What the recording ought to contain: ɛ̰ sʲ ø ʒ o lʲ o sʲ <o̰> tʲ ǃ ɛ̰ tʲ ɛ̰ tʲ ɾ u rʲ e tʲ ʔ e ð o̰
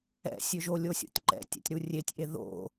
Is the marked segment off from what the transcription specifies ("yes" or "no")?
no